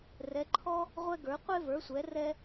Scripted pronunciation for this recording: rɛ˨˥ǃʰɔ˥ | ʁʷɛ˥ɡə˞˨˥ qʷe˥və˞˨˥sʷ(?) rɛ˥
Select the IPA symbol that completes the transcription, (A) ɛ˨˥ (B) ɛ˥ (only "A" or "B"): A